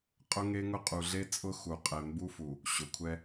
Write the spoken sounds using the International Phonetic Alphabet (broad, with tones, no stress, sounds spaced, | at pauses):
qʼ ʊ˦ ŋ e˦ ŋ ʊ˦ qʼ u˨ ɮ e˦ t͡sʼ ʊ˦ x u˨ qʼ ɛ˨ m b u˦ f u˨ | ɕ ʊ˨ kʷʰ ɛ˦